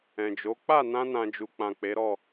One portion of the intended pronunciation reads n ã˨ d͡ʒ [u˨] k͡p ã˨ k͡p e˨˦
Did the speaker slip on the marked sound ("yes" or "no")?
no